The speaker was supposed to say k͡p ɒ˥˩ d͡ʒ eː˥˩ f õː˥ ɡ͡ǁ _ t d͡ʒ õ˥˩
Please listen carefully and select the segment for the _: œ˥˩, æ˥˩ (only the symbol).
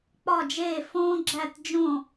æ˥˩